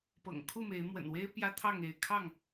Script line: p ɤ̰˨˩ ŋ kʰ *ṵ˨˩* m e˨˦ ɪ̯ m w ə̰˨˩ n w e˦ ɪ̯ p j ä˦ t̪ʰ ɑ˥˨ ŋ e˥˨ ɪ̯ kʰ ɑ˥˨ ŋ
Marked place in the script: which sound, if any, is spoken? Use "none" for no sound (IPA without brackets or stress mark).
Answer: u˥˨